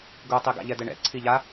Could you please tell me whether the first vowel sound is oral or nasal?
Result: oral